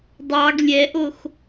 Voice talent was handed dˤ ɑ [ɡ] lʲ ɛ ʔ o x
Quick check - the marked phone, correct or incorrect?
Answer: correct